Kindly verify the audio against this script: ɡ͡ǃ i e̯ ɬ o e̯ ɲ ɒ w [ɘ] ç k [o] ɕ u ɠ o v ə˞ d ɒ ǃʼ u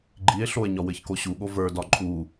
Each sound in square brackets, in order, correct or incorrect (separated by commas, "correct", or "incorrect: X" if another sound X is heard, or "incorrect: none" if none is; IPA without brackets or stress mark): correct, correct